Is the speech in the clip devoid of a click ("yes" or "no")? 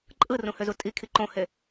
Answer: no